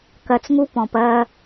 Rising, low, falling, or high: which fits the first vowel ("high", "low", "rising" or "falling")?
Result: low